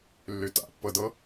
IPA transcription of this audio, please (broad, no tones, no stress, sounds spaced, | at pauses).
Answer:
lː y t a̰ pː ɤ d ɤ